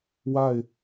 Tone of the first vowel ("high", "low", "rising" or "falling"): falling